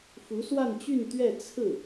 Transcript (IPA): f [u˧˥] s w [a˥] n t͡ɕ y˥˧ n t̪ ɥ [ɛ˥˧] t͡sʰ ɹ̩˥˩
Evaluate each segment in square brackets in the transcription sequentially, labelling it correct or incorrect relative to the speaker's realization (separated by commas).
correct, incorrect, correct